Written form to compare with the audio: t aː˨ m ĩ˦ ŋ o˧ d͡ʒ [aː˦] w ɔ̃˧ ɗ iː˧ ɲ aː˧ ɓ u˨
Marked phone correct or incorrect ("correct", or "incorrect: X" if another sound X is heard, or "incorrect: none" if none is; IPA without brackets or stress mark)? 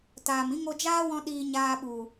correct